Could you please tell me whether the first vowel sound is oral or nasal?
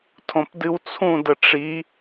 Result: nasal